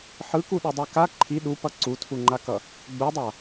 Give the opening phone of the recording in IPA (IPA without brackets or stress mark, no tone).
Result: ħ